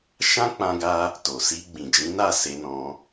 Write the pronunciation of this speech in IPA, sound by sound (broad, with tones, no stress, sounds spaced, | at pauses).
ʃ ã˦ k͡p ã˦ ɡ a˦ | t o˨ s i˧ ɡ͡b ĩ˨ d͡ʒ ĩ˨˦ n a˦˨ s e˧ n ɔ̃˧